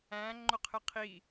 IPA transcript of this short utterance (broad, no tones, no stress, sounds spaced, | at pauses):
æ̃ ŋ͡ǃ ʊ qʰ ɪ qʰ i